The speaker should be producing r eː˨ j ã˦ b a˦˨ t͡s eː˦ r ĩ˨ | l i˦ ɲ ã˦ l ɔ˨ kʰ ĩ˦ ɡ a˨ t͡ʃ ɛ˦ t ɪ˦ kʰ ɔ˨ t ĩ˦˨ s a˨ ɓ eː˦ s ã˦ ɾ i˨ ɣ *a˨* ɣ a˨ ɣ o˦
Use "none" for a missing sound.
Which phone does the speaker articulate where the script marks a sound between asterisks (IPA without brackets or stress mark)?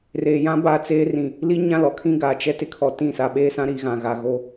ã˨